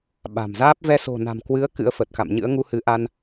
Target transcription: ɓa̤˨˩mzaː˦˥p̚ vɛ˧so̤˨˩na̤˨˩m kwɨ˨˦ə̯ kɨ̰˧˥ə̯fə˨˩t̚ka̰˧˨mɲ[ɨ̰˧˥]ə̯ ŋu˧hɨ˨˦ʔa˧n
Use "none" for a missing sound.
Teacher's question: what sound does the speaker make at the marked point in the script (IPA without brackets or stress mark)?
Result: ɨ̰˧˥